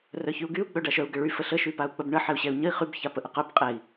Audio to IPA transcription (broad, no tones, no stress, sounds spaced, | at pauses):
r œ ç y u̯ ɡ y u̯ ɡ͡b œ ɖ a ʃ œ u̯ ɡ ə ɭ y f ə ɬ ə ʃ y p a u̯ k͡p ə b ɳ ə ħ ɛ u̯ ɕ ɛ u̯ ɲ ə i̯ χ y b ç a p ə ʔ ə q œ b qʼ ɛ i̯